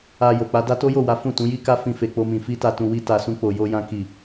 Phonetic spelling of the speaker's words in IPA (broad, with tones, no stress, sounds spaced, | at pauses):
a˧ j o˨ k͡p a˨˦ d a˦ t o˦ j o˦˨ w a˨˦ f ũ˦˨ t ũ˨˦ j i˦ k a˦ f ĩ˦ f e˧ k͡p o˦ m ĩ˧ f i˦ t a˧ t ũ˧ w i˦ t a˧ s ũ˦ k͡p o˧ j o˦ j ã˦ k i˦˨